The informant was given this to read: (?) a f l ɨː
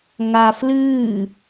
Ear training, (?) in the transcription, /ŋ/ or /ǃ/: ŋ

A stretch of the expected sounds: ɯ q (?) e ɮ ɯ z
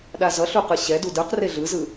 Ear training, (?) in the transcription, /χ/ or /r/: r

